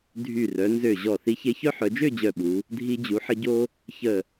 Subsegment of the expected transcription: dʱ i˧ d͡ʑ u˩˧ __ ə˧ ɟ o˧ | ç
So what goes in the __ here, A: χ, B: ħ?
B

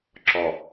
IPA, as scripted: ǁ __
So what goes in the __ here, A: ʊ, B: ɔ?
B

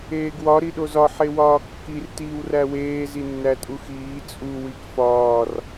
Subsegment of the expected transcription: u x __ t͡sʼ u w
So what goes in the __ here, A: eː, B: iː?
B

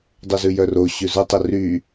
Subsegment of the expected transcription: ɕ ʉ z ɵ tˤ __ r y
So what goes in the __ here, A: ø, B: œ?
A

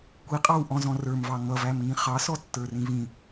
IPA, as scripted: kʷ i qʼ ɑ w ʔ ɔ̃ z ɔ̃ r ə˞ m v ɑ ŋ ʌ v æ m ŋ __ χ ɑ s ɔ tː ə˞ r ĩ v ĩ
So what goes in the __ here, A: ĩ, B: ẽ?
A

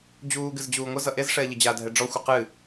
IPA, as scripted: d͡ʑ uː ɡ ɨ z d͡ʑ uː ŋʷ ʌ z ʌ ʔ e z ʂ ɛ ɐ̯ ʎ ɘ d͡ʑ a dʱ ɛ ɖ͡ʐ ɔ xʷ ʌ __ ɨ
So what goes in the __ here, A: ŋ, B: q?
B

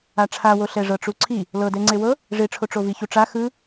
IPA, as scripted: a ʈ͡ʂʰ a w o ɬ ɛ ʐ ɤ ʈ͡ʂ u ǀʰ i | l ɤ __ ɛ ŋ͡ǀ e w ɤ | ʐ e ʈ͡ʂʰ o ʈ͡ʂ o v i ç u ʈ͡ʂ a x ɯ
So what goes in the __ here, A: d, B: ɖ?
A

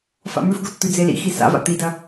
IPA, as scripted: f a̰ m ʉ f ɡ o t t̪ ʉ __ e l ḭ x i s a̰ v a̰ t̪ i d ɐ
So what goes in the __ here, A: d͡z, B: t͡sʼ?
A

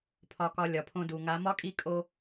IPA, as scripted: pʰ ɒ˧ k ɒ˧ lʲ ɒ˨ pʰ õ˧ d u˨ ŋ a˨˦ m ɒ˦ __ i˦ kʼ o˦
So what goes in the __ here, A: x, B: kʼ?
B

